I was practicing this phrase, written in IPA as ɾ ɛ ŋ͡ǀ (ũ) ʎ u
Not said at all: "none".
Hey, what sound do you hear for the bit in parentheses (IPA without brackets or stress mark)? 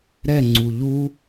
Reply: u